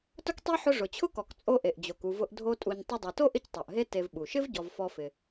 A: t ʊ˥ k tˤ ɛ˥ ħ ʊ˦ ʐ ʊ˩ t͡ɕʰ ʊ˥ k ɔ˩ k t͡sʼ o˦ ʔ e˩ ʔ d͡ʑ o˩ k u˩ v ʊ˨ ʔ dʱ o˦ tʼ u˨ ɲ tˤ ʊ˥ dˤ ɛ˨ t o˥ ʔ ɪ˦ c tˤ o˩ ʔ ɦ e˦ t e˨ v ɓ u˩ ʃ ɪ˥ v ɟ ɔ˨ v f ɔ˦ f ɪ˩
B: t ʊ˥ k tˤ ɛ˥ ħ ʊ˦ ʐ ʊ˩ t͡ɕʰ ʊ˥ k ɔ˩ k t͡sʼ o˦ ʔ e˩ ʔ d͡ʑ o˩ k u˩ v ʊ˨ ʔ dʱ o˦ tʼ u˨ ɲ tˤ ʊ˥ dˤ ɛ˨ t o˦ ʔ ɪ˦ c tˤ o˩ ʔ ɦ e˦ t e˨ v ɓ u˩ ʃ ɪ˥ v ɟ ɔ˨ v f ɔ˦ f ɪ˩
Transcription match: A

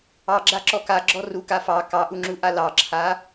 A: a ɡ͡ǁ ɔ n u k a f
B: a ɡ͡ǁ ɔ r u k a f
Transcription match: B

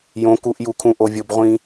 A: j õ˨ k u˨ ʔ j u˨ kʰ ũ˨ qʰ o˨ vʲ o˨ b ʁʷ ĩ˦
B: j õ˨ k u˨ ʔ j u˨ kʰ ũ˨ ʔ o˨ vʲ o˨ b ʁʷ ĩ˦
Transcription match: B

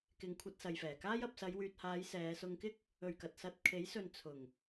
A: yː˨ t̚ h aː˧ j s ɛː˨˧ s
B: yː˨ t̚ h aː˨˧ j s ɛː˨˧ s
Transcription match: B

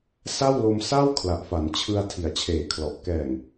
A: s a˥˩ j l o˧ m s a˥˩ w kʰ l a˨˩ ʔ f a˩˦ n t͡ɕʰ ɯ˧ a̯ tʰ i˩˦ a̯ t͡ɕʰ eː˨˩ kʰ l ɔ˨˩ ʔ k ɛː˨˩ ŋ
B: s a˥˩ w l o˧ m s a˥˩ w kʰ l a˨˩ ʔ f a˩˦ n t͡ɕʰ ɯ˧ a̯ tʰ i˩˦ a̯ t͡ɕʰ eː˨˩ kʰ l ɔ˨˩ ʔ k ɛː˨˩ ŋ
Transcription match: B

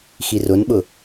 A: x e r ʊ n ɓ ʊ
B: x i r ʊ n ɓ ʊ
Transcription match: B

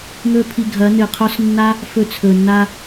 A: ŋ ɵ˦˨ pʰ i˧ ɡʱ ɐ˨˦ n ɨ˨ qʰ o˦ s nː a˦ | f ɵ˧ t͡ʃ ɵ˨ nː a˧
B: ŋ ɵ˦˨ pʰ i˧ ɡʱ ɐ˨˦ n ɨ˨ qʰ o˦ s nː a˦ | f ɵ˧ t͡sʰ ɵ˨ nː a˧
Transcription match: B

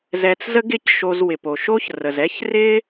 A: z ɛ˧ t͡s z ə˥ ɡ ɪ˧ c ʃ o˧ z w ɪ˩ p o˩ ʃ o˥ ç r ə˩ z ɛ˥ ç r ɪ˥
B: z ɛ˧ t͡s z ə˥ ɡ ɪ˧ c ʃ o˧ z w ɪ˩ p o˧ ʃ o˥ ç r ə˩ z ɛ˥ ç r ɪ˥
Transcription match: A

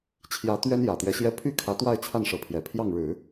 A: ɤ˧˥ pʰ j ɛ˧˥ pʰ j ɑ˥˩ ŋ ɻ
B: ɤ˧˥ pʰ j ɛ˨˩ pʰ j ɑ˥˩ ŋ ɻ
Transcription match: B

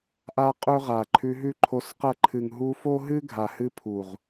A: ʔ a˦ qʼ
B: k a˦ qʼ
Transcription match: A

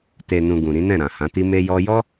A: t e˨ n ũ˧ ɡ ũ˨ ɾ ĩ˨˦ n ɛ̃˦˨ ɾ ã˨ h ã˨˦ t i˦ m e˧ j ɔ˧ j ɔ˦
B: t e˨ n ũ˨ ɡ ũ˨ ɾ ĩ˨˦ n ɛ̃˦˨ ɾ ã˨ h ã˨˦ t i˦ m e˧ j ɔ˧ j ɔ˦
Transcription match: B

